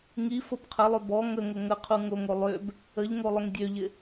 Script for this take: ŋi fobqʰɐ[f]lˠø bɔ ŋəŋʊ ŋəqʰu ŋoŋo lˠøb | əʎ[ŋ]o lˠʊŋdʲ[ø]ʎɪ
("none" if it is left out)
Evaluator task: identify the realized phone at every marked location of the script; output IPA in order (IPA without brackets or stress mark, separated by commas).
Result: none, ŋ, ø